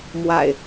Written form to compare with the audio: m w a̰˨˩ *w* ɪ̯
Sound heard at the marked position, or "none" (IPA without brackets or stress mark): none